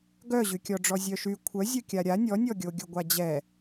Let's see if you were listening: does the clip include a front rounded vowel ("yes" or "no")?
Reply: yes